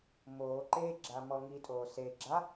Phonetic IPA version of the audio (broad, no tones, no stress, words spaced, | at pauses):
moː ǃeɡ͡ǁa mɔŋitʼoː se ɡ͡ǁa